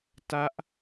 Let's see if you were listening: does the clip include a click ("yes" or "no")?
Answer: no